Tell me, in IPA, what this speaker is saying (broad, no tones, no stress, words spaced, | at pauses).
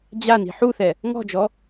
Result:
d͡ʑani̤ ħuθɛ | ŋɔ̤d͡ʒɔ